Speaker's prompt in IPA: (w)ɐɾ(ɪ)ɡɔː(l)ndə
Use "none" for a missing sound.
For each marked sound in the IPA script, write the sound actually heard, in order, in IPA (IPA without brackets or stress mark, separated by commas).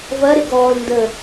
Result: v, ɪ, l